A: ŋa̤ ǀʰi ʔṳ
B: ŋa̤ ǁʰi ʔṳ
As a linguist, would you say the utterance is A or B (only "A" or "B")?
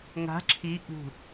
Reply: B